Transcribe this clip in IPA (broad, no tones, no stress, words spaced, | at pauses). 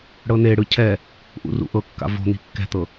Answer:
ɽɤneɽɯ cʰɛ | ʔṵrṵʔɤkːa̰ vo̤ n̪i̤kːɛ̤t̪ɤ